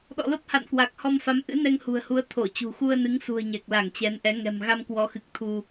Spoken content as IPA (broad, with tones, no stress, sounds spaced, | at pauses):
ɗ ɔ̰˧˨ l o˦˥ t̚ h a̰˧˨ n k w a˨˩ k̚ h ɔ˧ m f a˨˦ m ʔ ɨ̰˧˥ n ɛ˧ ŋ h ṳ˨˩ ə̯ h u˨˦ ə̯ t̪ʰ o˧˩ t͡ɕ ṳ˨˩ x u˧ ə̯ n ɨ˨˦ ŋ s ṳ˨˩ ə̯ ɲ ɛ˨˩ k̚ l a˧˩ ŋ t͡ɕ ɛ˨˦ n ʔ ɛ˨˦ ŋ ɛ̤˨˩ m ɣ a˧ m k w ɔ˨˦ x ɨ˨˩ k̚ t̪ʰ u˧